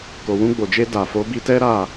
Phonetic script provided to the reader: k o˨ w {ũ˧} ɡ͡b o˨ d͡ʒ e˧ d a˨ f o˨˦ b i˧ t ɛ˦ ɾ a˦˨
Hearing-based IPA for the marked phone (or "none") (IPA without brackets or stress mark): ũ˧